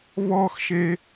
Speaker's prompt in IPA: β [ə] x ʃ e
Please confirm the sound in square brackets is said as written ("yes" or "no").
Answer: no